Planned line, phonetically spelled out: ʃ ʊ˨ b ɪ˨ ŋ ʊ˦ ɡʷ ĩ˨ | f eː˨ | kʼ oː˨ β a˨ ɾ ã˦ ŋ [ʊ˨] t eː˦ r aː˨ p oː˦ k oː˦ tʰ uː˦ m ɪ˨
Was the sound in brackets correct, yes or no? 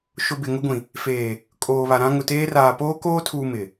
yes